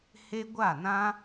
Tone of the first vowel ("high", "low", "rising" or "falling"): high